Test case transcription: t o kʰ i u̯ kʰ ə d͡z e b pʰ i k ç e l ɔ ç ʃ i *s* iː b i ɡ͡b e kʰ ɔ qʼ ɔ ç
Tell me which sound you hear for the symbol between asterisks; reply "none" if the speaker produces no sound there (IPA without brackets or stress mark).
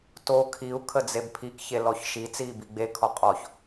t͡s